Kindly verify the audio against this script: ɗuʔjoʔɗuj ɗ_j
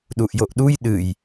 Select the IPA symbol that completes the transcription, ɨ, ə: ɨ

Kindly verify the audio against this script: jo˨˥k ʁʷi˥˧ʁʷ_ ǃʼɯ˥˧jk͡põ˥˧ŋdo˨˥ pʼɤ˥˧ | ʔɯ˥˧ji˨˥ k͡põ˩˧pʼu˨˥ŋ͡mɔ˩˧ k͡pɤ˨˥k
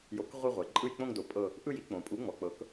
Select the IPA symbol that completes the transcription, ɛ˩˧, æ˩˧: ɛ˩˧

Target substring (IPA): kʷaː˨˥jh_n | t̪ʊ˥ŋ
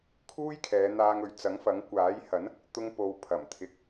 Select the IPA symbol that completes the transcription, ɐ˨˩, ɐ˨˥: ɐ˨˥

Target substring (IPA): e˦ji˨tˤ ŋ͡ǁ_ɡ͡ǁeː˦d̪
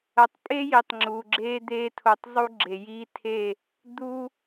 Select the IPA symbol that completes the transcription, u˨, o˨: u˨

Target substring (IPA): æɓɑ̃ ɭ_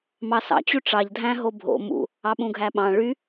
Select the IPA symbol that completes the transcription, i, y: y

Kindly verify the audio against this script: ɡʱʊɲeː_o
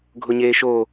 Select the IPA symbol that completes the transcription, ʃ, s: ʃ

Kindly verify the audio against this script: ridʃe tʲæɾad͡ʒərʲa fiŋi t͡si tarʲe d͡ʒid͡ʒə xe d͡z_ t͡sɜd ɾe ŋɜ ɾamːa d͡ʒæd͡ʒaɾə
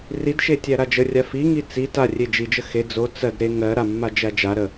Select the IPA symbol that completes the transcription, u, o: o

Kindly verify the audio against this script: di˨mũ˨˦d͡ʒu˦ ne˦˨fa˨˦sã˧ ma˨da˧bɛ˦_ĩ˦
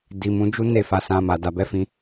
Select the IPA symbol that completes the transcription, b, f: f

